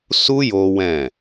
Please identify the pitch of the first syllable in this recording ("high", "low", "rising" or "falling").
high